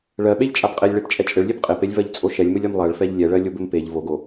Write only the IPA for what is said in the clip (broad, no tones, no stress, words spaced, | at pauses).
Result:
ɭɜɓeʎt͡ʃʼab qʼelʲɭept͡ʃʼɛ t͡ʃʼɘɭlʲeb qʼepelʲvɜʎ t͡sʼoʃɛlʲmɘlʲɜm lˠɜɭfɛʎ lʲɛɭɜ lʲobɘmpeʎ voɡo